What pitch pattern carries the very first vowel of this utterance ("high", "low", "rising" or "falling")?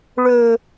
low